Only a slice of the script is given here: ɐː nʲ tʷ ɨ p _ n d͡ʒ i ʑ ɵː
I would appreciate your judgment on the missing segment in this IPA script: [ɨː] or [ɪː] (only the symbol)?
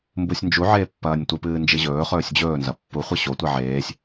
ɨː